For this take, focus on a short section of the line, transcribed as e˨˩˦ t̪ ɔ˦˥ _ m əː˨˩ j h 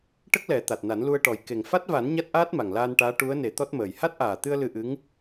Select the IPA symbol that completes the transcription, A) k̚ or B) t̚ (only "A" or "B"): B